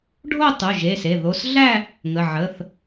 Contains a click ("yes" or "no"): no